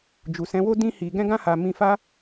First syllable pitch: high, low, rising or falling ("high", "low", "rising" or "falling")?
low